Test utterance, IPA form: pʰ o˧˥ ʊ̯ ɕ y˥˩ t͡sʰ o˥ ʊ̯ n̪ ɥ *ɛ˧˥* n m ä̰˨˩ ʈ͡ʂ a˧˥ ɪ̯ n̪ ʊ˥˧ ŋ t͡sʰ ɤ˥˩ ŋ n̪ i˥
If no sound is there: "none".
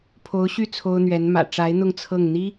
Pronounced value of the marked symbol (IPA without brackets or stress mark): ɛ˧˥